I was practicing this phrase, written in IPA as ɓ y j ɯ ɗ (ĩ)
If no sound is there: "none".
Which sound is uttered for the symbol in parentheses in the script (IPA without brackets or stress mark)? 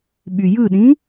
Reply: ĩ